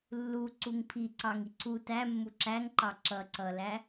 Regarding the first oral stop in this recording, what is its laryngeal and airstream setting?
click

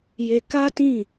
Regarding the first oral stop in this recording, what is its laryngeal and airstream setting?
plain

